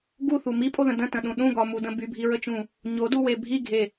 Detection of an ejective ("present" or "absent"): present